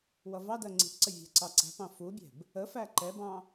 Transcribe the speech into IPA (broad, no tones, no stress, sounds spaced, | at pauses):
w ʌ v ɑ d ɜ ŋ͡ǀ i̤ ʔ ǀ ə vʲ æ̤ ǀ ɑ ǀ æ̤ p ɑ̃ f u bʲ ɛ̤ b | ə f æ ǃ ɛ b ɑ̃